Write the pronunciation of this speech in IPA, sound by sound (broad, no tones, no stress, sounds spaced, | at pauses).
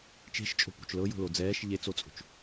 t͡ʃ e̤ ʃ t͡ʃʼ o̤ p ṳ t͡ʃ l ɤ j o̤ l o d͡z ɛː ʃ ʎ e t͡s o t͡sʼ o̤ t͡ʃ